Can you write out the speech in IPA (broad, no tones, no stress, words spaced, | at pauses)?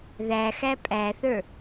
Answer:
ðæxæ pʼæθə˞